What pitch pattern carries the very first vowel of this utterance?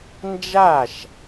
falling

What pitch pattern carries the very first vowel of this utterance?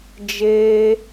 high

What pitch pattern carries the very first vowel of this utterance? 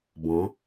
rising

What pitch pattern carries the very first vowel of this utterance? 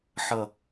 falling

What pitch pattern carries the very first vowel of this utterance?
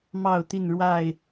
falling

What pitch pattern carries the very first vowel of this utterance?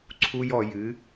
high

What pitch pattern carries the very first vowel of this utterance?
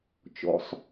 high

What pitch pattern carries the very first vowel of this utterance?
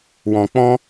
low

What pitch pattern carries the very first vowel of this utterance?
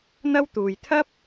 high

